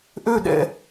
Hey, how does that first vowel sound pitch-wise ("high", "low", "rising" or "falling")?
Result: falling